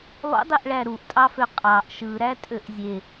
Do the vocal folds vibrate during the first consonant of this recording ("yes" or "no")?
yes